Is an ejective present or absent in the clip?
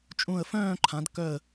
present